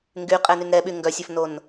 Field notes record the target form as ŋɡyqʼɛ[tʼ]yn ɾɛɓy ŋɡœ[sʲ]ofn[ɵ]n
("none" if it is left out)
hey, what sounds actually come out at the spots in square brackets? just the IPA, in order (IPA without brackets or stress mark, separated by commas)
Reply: n, sʲ, o